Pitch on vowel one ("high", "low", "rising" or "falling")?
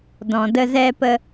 low